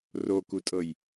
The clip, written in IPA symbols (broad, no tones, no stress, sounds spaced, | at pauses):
r o k u tʼ ɤ j